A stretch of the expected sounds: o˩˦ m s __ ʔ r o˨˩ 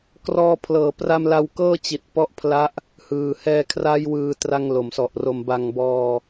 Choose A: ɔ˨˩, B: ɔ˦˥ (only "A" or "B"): A